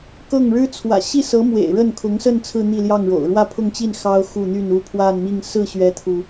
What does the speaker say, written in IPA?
k ɤ˥˩ ŋ ɻ ɻ̩˥ t͡sʰ w ä̰˨˩ ɕ i˥˩ s ɤ˧˥ m w ḛ˨˩ ɪ̯ ɻ ə˥˩ n kʰ ʊ˧˥ ŋ s ə˥˧ n t͡sʰ ɹ̩˥˧ n̪ i˥˧ l j ɑ˥˩ ŋ ɻ o̰˨˩ ʊ̯ ɻ w ä˥˧ pʰ ʊ˥˧ ŋ t͡ɕ i˥˩ n x ɑ˥ ʊ̯ x u˥˧ n̪ y˥˧ n u˥˧ pʰ w a˥˧ n m i˥˧ ŋ s ɹ̩˥˩ ɕ ɥ ɛ˥ t̪ʰ u˨

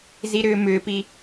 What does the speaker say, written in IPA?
z i ɾ ʏː m ʏː p i

